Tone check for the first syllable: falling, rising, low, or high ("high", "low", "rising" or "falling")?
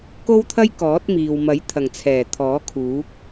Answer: high